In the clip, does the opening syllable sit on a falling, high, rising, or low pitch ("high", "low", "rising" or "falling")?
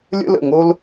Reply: high